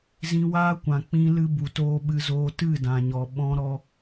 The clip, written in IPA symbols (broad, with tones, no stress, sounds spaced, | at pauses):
z ĩ˧ w aː˦ kʷ ã˨ k͡p ĩ˧ l ɨ˧ b u˨ t oː˧ ɓ ɨ˧ z oː˧ t ɨ˦˨ d ã˨ ɲ ɔ˨ ɓ ɔ̃˧ ɾ ɔ˧